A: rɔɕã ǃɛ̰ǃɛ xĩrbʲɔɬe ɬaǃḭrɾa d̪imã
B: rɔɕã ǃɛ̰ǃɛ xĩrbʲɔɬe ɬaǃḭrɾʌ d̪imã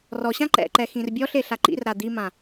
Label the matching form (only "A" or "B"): A